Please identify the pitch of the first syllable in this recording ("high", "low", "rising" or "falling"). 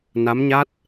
rising